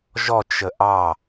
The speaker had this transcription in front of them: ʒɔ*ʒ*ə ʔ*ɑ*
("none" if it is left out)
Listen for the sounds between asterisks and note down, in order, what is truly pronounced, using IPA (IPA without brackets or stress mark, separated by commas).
t͡ʃ, ɑ